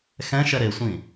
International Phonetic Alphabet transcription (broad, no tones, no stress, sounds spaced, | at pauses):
x ɛ̃ ʃ ɛ ɾ e sʷ ĩ